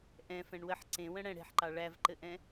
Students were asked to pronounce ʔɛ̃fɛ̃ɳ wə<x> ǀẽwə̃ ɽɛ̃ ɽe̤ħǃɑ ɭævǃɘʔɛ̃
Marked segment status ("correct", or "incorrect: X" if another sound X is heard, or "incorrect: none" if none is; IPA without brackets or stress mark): incorrect: ħ